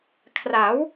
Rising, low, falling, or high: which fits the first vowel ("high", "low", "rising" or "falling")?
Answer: rising